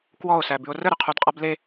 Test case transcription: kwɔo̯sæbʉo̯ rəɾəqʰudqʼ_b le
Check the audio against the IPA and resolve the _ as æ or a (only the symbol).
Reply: a